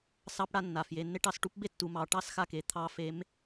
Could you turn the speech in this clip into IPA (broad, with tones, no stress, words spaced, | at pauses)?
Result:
sɑ˧˥pɽa˧ nːa˩fje˩˧nːe˥ʈ ɑ˧s ʈu˧˥pbe˥ tːu˩˧mɑ˩˧ ʈɑ˥sxa˧ke˩˧ t̪ʰɑ˧˥fe˧˥m